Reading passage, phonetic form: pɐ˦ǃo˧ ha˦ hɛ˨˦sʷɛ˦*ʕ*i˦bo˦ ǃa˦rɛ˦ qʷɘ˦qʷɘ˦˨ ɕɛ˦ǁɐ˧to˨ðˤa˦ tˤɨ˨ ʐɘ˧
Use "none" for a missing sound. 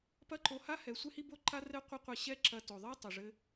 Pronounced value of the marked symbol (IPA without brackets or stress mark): h